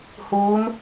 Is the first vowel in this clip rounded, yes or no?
yes